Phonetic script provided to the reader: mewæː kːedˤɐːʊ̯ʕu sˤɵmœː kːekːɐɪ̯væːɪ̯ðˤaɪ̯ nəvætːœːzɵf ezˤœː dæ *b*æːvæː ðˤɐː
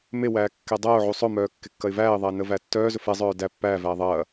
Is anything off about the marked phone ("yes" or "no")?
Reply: yes